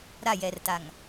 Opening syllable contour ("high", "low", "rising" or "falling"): falling